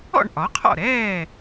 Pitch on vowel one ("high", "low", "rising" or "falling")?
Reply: falling